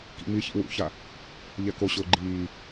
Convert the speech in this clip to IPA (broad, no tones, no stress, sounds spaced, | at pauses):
k ḭ ŋ͡m i ç ḭ w ṵ ç a | ʎ ɛ k o ɕ ʊː ɡ͡ǃ iː